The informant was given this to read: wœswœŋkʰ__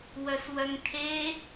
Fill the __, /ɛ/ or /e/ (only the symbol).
e